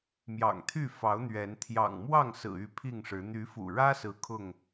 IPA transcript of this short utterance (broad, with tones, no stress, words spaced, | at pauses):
mjɑ̰˨˩ŋt̪ʰy˥˨ fɑ˨˦ʊ̯ n̪ɥɛ˨˦n t̪ʰjɑ̰˨˩ŋmwɑ˥˨ŋsɹ̩˨˩ y˥˨pʰi˥˨ŋʂɻ̩˨˦ n̪y˨˦fṵ˨˩ɻä˦sɹ̩˨˦ kʰʊ˥˨ŋ